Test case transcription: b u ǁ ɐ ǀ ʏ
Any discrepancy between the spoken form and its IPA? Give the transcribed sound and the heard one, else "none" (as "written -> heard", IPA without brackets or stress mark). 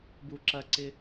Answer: ʏ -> ɪ